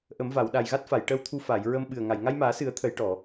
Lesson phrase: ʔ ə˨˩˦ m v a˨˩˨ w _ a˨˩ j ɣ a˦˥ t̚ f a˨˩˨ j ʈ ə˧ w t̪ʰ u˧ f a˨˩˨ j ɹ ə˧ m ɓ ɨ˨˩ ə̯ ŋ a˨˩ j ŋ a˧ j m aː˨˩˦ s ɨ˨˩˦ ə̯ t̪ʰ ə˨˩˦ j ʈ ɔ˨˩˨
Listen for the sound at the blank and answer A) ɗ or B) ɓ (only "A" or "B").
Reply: A